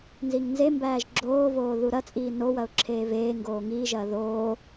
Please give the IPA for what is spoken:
n z i ŋ n z e m b æː ʒ ɡ͡ǁ oː v oː ð u ɾ ɐ t͡sʼ iː n o w ɐ ʊ̯ ǁʰ eː v eː ŋ ɡ oː ŋ iː ʒ ɐː ð oː

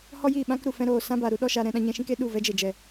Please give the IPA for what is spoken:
h ɔ˦ j iː˦˨ ɓ ã˦ k ɾ u˨ f ɛ̃˧ ɾ oː˨ s ã˦ b a˨ ɾ u˦ ɗ ɔ˦ ʃ a˧ ɾ ɛ̃˧ ɗ ã˧ ɲ ɛ̃˧ ʃ ĩ˦ k e˦ ɗ u˦˨ v ɛ˦ d͡ʒ e˨ d͡ʒ ɛ˨

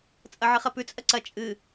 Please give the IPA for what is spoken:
t͡sʼ ɐ ʕ ɨ χ ɐ p ʉ t͡sʼ ɐ ǀ ɐ t͡ʃʼ ɨ

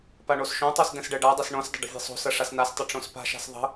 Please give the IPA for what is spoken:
p a ɳ o s ʃ õ tˤ o s d ɛ̃ s ɖ ɛ ɖ a dˤ ɐ s ɳ õ s dˤ ə̤ ɖ ə̤ vʲ ɛ̤ sˤ o̤ s ɐ ʂ a s n a s tˤ ə ʈ͡ʂ õ s p a̤ ʃ a̤ s ðˤ ə̤

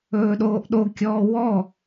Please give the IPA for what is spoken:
ɵː ɗ oː ʔ ɗ o kʲ ɔː w ɔ

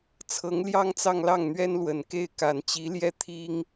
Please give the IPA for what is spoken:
t͡sʰ ɤ˧˥ ŋ l j ɑ˥ ŋ t͡s ɑ˥˧ ŋ l ɑ˥˩ ŋ n̪ ɥ ɛ˥ n l w ə˨˩ n k e˥˩ ɪ̯ k a˨˩ n t͡ɕ i˧˥ l j ɛ˥˩ t̪ʰ i˥ ŋ

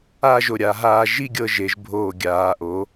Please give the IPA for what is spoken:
a˥˧ ʒ o˧˩ ɾʲ a˩˧ ɦ aː˧ ʒ i˥˧ ɡʲ ɤ˧ ʒ e˩˧ ʒ bʱ oː˧˩ ɡʲ aː˩˧ ʔ o˩˧

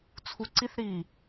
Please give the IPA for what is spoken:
t͡sʰ u ǀ i θ ɾ iː

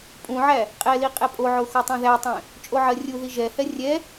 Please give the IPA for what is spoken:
pʼ ũ ʕ æ | qʼ ɛ l i qʼ ɛ pʼ o ʕ o x o tˤ ɛ̃ ð æ tˤ ɛ̃ | t͡ʃʼ o ʕ ɜ rʲ u ð i ʒ ɛ h ɛ rʲ ɛ

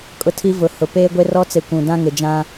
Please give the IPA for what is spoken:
kʼ ʊ˦ tʰ i˦ v ʊ˨˦ h ʊ˨ p eː˦ ɡʷ e˦ r ɔ˦ t͡s e˨ kʷ ũ˨ d ã˦ ŋ ɪ˨ d͡ʒ ã˦

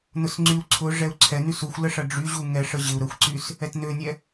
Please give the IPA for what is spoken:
n ʊ s ŋ͡ǀ y u̯ ǀʰ ʊ ʐ ɛ u̯ ǀʰ ɛ n y s u xʷ l ə ʂ ɐ ɖ͡ʐ y ʑ u ŋ ɛ ʂ ə ʑ ɪ u̯ ɾ ə xʷ ǀ y s | ɛ t n ø nʲ ɛ

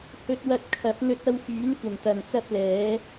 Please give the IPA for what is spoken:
h ɵ˧ t̚ w ɐ˧ t̚ kʰ ɐ˨˥ p̚ n̪ ɵ˧ t̚ ɐ˧ w f yː˨˥ n kʷ ɐ˨˩ m t̪ ɐ˨ n t͡s ɐ˥ p̚ l ɛː˨˥

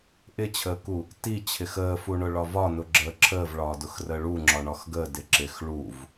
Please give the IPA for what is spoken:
ʔ ɪ t͡ɕʰ əː k u | t i t͡ɕʰ ɪ x əː f u ɳ ʊ ɭ ɒ v ɒ n ʊ ɡ͡ǁ əː ǁʰ əː v ɭ ɒː d ʊ x r əː ɭ u ŋ͡ǁ ɒ ɳ ɒ x ɡ əː d ɪ ǁ ɪ x ɭ u v

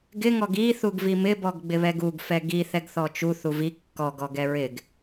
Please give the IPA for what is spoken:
ɡ ɪ ŋ ɔ ɡ i θ u ɡ v i m ɪ b ɔ ɡ ɡ͡b ɪ β ɛ ɡ u ɡ f ɛ ɡ i θ ɛ ɡ θ ɔ t͡ʃ u θ u v i kː ɔ ɡ ɔ ɡ ɛ ɹ ɪ ɡ

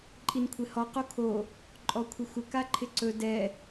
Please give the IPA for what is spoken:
ǃʼ i n kʷʰ ɪ h ɔ q o kʰ o | ǃʼ ɔ kʷʰ ɪ xʷ ɪ k a ǃʰ ɪ ǀ ɵ d ɛ

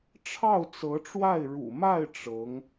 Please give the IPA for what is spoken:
ʈ͡ʂʰ ɑ˥˩ ʊ̯ t͡s ɤ˧˥ ʈ͡ʂ w a˥˩ ɪ̯ ɻ ṵ˨˩ m a˥˩ ɪ̯ ʈ͡ʂ ɤ˧˥ ŋ

